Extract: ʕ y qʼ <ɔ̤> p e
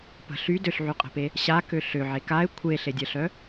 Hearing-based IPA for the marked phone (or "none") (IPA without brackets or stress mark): ə̤